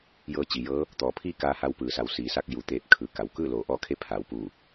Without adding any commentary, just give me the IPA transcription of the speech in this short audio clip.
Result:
j ɤː˧ t͡ɕ i˩ j ɤː˧˥ | t̪ ɔː˩˧ pʰ iː˥˨ k aː˧ h a˧ w p ɯː˩ s a˩˧ w s iː˩ s a˧ k̚ j u˩ t̪ eː˧˩ p̚ kʰ ɯː˩ k a˩ w k ɯː˥˨ l oː˩˧ ʔ ɔː˧ kʰ e˧˥ pʰ aː˩˧ w p uː˧˩

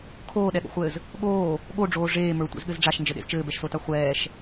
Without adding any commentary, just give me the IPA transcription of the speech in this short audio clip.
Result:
kʰ oː ɗ ɛ ɠ o̰ χʷ ɘː z | ɠ oː | ɠ o ɖ͡ʐ oː ʐ eː m ə˞ tʷ ḛ z ɠ ɘ z ɖ͡ʐ a ʃ n d͡ʒ ɘ ɗ ḛ z t͡ʃ ɘː b ɛ ʃ s o t a χʷ ɛː ʃ

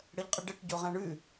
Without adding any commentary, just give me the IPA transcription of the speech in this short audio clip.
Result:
ɽ ə ʎ qʼ ə ɖ ə ʈ ɟ o ʁ ã ɳ ʉ

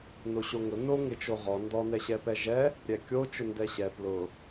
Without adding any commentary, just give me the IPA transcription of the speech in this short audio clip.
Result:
n o ɕ o ŋ ʊ n o ŋ ɪ t͡ʃ o ʁ ɔ n d ɔ n ɛ ɕ ɛ p ɛ ʒ ɛ | ɾʲ ɛ kʲ o t͡ʃ ʊ n d ɛ ɕ ɛ p l ʊ

